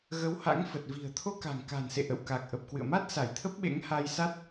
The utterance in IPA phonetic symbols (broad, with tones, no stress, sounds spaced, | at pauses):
ɣ ə˨˦ w h a̰˧˥ ŋ f ə˨˩ t̚ v i̤˨˩ ə̯ t̪ʰ o˧ k a̤˨˩ ŋ k a̤˨˩ n s ḛ˧˨ ʔ ə̰˧˨ w k a˨˩ k̚ ʔ ə˨˩ p̚ k w ɨ̰˧˨ ə̯ m a˦˥ t̚ s a˧˩ j t̪ʰ ə˦˥ p̚ ɓ ḛ˧˥ ŋ h a˧ j s a˦˥ t̚